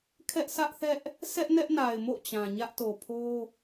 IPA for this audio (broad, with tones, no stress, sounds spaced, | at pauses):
kʰ ɛ˦ ʔ s ä˦ ʔ θ ɛ˦ ʔ | sʰ ɛ˦ ʔ n ɛ˦ ʔ n a˨ ɪ̯ m o̰˦˨ t͡ɕ ã˨ ɲ ä˦ ʔ t o˨ pʰ o˦